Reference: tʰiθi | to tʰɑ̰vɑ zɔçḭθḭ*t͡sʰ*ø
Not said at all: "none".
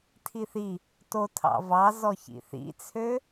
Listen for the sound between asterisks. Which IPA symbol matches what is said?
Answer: t͡sʰ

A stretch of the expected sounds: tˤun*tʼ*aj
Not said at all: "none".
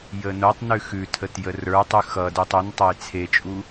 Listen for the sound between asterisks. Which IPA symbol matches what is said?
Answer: tˤ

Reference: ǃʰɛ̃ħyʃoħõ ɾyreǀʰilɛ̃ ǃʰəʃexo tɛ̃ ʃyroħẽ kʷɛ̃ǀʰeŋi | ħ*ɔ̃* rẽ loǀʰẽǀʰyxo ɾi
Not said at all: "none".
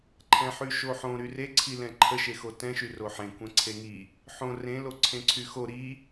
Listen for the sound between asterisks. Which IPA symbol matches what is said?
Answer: õ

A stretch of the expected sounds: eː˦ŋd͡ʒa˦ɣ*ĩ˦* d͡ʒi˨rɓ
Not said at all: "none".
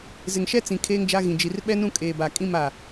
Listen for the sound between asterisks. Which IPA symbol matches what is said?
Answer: ĩ˨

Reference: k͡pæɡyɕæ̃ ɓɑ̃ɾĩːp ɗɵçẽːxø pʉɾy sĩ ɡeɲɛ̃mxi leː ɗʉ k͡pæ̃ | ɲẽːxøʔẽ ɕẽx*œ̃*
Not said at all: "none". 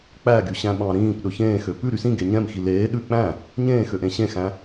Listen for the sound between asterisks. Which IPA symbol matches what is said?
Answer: æ̃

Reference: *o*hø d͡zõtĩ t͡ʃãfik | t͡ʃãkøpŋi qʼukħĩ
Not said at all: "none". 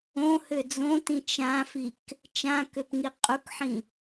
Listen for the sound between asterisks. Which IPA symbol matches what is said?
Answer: õ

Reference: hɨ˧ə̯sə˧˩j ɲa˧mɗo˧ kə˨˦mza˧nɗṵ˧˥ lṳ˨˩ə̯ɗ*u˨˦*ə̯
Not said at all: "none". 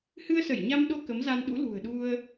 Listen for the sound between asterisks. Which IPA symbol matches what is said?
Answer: u˧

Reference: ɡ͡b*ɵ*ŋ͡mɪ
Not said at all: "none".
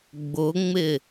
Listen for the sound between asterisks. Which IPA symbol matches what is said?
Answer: ʊ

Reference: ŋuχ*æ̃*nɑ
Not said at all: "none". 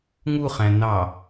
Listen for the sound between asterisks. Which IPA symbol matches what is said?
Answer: æ̃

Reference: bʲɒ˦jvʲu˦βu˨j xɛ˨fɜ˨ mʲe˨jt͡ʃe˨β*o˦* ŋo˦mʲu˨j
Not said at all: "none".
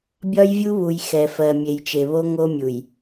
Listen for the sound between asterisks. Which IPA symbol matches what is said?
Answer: o˦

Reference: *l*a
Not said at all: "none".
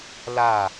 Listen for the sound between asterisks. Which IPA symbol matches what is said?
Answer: l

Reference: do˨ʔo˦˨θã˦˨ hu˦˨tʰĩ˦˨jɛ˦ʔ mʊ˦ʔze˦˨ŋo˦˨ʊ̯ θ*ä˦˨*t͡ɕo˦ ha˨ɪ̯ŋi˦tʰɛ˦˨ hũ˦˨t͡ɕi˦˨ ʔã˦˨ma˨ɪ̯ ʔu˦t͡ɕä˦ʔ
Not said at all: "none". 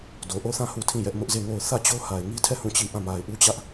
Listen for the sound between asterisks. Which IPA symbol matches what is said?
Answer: ä˦˨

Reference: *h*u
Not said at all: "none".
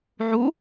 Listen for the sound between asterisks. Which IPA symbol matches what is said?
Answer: ʕ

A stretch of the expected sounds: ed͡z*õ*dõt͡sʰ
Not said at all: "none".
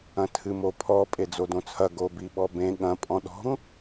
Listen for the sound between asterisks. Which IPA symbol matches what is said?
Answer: o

